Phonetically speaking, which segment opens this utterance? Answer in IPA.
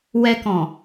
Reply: w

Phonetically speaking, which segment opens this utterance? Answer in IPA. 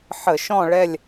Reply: ħ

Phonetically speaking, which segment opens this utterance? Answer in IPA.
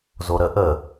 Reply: z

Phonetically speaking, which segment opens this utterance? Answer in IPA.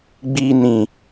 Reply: ɡ͡b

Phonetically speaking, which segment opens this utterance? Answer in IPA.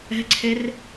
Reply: ɛ̤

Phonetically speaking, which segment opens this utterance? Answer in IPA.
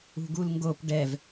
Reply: ṳ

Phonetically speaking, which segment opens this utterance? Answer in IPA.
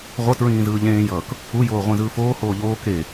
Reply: ʁʷ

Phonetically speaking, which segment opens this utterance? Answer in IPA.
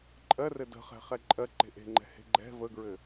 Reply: ǃʼ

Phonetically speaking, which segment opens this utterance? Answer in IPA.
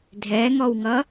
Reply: dʱ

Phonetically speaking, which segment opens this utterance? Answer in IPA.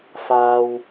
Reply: f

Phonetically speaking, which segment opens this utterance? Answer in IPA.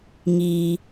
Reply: ŋ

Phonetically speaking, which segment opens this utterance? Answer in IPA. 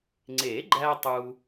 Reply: ŋ͡ǀ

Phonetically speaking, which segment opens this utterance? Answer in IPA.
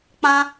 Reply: k͡p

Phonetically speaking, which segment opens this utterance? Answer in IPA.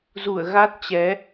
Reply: z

